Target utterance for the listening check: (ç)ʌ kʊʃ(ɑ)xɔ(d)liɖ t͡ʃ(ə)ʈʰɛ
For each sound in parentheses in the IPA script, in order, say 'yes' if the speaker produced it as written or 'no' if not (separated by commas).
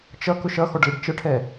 no, no, no, yes